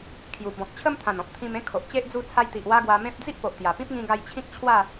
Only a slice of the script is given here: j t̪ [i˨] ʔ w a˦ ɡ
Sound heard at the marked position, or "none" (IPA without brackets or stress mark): i˨